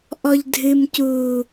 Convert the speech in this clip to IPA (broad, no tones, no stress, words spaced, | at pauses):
ʔɔʎdʱɨm cuː